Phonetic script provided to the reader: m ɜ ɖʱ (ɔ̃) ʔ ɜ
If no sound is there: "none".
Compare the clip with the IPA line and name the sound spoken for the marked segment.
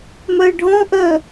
ɔ̃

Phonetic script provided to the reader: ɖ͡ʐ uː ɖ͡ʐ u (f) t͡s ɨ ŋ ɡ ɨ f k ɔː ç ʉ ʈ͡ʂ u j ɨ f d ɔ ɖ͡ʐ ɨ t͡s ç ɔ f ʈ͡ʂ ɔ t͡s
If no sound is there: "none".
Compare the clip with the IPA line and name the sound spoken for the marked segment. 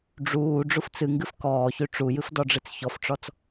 f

